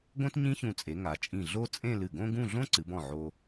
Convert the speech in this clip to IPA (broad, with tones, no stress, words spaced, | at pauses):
ɡõ˥tɲĩ˥çũ˧˩t͡sʼe˩˧ ŋa˩˧t͡ʃʼĩ˧˩ɮo˥˧t͡sʼẽ˥˧ lɨ˧˩ɡõ˥ɡũ˥˧ ɮõ˥ǀɨ˩˧bɔ̃˧˩ ʕo˧